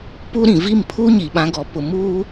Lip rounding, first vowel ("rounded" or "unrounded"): rounded